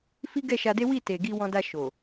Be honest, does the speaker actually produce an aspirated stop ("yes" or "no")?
no